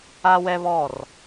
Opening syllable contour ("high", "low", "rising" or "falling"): high